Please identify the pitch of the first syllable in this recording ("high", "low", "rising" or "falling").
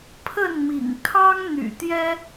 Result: falling